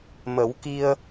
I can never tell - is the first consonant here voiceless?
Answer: no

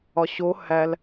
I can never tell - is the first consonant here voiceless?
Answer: yes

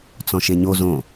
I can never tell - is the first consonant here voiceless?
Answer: yes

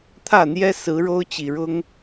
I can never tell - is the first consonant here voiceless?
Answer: yes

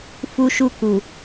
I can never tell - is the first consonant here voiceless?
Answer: yes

